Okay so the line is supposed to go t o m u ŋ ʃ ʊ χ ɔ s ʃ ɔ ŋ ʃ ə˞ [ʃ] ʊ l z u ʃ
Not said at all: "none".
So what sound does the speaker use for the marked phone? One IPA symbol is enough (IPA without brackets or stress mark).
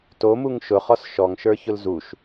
ç